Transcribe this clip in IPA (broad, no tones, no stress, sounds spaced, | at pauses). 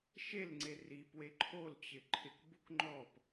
ʃ e l ŋ͡ǀ e r i p w e ǃʰ o l t͡ɕ ɪ ǃʰ ɪ k b u k ŋ͡ǃ ɔ p